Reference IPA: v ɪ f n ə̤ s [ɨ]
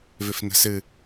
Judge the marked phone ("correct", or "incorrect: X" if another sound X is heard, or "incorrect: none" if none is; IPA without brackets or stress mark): correct